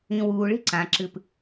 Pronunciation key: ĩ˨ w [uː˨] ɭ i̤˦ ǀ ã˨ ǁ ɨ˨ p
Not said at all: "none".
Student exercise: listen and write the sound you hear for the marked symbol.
uː˨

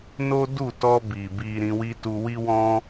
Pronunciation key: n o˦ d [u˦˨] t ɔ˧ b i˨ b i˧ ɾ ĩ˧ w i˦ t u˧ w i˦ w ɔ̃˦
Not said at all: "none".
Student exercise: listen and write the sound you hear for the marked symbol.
u˦˨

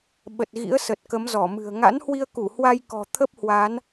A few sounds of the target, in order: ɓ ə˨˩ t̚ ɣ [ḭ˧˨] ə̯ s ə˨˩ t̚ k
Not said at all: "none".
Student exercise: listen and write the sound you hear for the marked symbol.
ḭ˧˥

